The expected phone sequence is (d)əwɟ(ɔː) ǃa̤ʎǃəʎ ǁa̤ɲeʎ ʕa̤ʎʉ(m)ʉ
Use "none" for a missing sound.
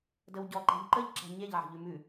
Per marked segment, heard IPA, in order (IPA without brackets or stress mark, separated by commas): d, ɔ, m